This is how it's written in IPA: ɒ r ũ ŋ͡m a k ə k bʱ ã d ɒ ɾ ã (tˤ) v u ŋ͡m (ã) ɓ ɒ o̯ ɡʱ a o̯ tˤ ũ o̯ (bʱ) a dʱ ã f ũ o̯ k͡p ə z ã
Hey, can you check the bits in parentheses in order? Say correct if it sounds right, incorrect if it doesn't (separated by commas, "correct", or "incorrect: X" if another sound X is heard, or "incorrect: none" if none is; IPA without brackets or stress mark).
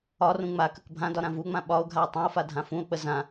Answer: incorrect: none, correct, incorrect: f